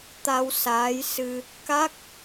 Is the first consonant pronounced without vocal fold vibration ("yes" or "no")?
yes